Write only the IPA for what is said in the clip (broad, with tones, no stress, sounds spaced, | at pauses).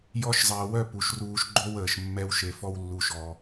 j ɔ˧ ʃ zˤ əː˨ w œ˦˨ p u˨ ʃ r uː˧ ʃ ɡ͡ǃ o˦ w əː˨ ʃ mː ɛ˧ w ʃ e˨ f ɔ˦ w lː u˧ ʃ ɔ˧